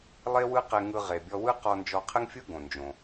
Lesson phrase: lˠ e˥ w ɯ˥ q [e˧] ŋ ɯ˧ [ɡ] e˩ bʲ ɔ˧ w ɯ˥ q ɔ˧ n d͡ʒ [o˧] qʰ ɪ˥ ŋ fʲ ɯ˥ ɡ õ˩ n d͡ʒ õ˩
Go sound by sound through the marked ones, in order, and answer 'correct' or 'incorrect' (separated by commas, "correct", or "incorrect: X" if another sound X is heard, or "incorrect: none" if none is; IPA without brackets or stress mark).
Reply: correct, incorrect: ʁ, incorrect: ɔ˧